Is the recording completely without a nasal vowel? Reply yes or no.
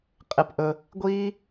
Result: yes